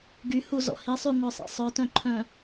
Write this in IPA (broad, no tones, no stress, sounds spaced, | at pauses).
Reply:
ɡ y h u z ɔ̰ h i sˤ y ŋʷ œ sˤ ḭ sˤ œ t œ̃ ǃʰ œ̃